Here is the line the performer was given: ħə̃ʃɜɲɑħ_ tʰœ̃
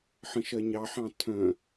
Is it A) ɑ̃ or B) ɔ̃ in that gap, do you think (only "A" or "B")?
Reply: A